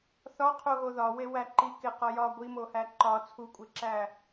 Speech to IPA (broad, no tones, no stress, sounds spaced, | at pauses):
θ ɒ qʰ o ɣ o ð ɒ w e w æ ǃ i k e q ɒ j ɒ ɡʷ i m o h æ ǃ ɒ t͡sʰ u kʷʼ e ǁ æ